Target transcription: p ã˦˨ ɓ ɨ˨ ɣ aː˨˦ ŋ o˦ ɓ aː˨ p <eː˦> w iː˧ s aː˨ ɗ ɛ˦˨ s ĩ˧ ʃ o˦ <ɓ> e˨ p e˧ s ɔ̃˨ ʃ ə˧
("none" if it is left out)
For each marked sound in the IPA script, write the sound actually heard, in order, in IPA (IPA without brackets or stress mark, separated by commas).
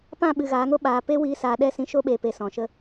e˦, ɓ